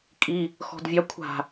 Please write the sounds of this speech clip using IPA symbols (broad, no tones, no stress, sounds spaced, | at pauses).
kʼ i | x ɔ̤ d vʲ ɑ kʷʰ a̤